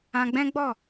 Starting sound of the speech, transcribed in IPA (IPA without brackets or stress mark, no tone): ã